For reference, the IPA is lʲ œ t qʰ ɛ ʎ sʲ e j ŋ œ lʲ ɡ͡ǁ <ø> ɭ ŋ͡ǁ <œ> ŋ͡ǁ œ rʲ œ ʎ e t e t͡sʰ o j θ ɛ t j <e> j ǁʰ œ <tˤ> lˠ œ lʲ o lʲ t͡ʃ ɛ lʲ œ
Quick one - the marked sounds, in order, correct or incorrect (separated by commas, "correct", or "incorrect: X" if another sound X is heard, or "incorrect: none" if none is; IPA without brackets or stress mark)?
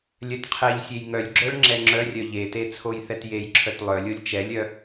incorrect: œ, incorrect: ɛ, correct, incorrect: t